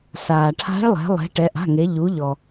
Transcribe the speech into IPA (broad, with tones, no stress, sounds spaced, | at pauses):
s aː˩ ʈʰ a̤˧˥ ɭ lˠ ɛ̤˩˧ lˠ ɛ̤˩˧ ʈ ɛ˩˧ ʔ a̤˩˧˩ ŋ e˩˧ ʎ u˩˧ ʎ ɔ˩